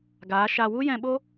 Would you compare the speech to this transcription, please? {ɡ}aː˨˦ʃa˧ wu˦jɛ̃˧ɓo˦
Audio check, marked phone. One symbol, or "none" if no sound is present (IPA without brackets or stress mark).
ɡ